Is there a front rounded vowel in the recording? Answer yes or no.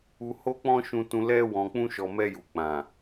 no